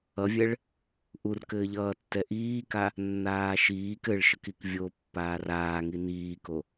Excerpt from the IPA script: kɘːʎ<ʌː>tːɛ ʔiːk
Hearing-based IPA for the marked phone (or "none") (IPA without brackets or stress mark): ʌː